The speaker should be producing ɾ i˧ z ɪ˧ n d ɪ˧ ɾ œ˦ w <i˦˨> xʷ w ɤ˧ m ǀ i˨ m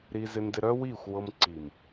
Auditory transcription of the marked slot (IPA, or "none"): i˦˨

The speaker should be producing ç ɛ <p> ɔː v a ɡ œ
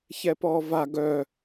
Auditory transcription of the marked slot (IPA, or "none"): p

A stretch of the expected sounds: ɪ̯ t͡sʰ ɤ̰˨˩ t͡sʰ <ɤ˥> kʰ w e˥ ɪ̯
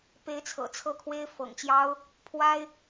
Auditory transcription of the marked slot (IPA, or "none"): ɤ˥˩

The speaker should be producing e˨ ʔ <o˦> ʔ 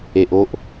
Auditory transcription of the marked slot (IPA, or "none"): o˦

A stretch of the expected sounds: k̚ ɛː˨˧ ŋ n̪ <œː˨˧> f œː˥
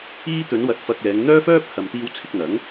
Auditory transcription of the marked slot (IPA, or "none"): œː˥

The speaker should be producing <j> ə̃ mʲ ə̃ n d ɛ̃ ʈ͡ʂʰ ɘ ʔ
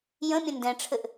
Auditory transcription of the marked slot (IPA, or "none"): j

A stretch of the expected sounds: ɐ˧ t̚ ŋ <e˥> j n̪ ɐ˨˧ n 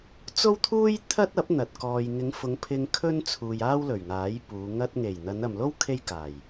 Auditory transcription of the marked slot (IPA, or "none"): e˨˩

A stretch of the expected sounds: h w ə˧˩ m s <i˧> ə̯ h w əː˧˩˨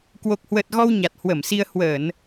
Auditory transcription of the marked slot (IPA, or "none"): i˧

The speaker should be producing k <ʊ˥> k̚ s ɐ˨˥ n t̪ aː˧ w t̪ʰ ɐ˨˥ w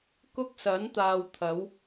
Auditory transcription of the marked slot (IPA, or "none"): ʊ˥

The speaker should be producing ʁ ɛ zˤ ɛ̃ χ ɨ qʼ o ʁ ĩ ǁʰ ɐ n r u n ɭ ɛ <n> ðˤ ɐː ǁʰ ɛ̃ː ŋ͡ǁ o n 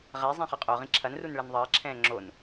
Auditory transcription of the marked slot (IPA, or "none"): n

